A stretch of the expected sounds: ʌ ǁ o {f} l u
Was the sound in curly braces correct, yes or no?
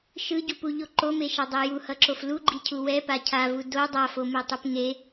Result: yes